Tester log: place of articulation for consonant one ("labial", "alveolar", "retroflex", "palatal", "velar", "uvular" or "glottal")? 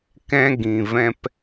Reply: velar